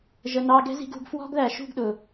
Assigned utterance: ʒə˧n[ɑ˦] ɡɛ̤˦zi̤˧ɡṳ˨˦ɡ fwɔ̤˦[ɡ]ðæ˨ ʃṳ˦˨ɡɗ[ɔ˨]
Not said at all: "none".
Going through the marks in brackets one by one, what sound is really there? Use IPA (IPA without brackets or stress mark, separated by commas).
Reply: ɑ˦, ɡ, ʊ˨